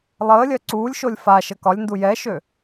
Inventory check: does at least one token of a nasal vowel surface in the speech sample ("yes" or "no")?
no